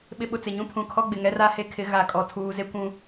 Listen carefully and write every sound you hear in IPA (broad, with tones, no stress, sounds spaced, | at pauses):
ɓ ɪ˨ ɓ ʊ˨ t͡s ɪ˨ ɲ ũ˦ pʰ ũ˨ kʰ ɔ˦ ɡ͡b ɪ˨ ŋ ɛ˦ r a˦ h e˦ kʰ ɪ˨˦ ɣ a˨ kʼ ɔ˨ tʰ uː˨ z e˦ kʷ ũ˦